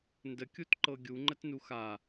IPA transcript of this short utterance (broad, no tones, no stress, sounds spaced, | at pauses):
n d ə kʲ u t ǃ ɤ ɡʲ u ŋ͡ǃ ə t n u x a